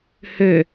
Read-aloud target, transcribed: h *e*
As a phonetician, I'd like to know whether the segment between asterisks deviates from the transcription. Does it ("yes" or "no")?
yes